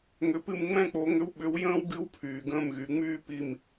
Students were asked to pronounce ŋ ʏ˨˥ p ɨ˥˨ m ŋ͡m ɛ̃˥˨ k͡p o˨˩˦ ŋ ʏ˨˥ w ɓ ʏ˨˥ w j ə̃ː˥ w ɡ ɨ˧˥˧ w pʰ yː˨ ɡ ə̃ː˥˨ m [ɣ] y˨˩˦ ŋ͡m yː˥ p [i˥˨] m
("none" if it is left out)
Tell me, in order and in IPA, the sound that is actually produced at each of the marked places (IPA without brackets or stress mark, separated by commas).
ɣ, i˥˨